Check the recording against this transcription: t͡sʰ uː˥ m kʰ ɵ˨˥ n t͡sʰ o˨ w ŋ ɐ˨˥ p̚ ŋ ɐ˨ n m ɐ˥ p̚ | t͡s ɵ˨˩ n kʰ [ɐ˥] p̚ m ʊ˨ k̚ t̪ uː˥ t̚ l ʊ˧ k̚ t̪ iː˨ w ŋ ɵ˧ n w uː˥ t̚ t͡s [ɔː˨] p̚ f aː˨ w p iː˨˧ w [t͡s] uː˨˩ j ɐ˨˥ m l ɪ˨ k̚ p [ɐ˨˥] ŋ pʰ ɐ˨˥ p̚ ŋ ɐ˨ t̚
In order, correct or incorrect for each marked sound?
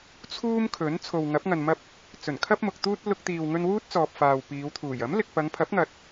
correct, correct, incorrect: t̪ʰ, incorrect: ɐ˨˧

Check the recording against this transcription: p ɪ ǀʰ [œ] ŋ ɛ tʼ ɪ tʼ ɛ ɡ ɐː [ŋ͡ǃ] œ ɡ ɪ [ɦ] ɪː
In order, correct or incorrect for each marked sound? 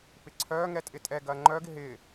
incorrect: œː, correct, correct

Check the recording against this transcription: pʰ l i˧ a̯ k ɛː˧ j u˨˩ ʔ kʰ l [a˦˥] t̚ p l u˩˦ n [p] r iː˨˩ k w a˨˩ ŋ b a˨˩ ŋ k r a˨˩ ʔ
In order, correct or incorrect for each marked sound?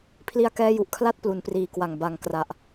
correct, correct

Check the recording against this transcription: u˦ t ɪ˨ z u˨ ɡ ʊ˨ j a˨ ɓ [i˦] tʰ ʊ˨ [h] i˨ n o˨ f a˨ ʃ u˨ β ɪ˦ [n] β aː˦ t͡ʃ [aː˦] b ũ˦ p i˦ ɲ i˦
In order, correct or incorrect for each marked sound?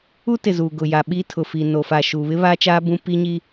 correct, incorrect: f, incorrect: none, correct

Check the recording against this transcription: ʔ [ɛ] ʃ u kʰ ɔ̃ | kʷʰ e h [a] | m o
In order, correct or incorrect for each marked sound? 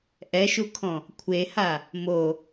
correct, correct

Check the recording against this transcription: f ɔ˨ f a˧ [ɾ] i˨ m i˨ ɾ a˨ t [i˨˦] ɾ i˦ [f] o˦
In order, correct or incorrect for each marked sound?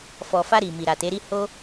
correct, incorrect: e˨˦, incorrect: h

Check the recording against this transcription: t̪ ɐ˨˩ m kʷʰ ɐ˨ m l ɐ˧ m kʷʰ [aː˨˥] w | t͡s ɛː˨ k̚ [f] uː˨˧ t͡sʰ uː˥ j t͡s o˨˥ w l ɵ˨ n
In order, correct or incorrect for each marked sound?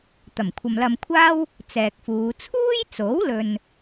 incorrect: aː˥, correct

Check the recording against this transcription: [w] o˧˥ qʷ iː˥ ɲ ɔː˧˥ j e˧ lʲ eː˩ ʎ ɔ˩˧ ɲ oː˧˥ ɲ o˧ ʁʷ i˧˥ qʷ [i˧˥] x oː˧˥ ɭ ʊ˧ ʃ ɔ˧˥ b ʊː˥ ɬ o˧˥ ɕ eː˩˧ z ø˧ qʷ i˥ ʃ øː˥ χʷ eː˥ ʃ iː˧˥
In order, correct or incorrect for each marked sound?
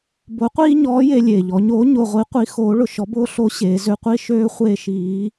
incorrect: b, correct

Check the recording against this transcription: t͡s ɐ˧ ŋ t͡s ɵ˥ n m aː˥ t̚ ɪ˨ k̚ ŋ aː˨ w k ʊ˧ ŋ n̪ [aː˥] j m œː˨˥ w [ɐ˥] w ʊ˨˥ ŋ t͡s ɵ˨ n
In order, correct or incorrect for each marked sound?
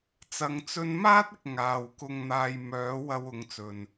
incorrect: aː˧, correct

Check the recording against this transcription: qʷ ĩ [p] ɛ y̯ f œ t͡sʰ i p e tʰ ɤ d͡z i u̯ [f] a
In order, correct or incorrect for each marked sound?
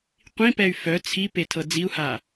correct, incorrect: h

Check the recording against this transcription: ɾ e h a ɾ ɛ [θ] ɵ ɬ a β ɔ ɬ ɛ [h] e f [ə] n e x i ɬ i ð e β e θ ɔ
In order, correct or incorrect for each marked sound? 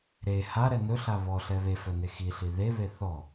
incorrect: n, incorrect: β, incorrect: œ

